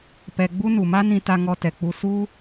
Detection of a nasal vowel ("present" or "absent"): present